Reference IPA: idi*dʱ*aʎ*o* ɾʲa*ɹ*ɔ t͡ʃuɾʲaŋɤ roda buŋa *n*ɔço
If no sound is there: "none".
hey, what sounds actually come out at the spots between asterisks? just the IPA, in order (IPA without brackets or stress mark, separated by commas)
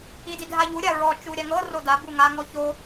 dʱ, u, ɹ, ŋ